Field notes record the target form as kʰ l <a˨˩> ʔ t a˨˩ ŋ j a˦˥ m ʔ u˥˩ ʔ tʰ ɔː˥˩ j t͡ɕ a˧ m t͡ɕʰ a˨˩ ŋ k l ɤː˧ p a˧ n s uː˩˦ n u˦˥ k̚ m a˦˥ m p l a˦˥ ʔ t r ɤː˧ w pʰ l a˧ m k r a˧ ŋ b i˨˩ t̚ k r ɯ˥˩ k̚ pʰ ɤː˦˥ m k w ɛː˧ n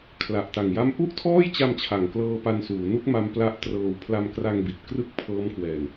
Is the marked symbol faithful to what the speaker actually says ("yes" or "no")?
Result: yes